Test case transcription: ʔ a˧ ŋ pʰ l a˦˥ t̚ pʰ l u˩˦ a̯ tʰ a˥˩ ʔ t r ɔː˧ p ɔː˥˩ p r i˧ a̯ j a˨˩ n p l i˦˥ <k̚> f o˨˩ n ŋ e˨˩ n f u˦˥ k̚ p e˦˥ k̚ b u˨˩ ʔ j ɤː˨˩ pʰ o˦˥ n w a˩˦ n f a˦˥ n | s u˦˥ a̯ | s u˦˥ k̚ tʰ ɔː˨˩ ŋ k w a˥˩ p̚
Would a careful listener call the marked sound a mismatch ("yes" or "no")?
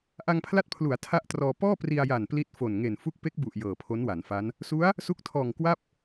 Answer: yes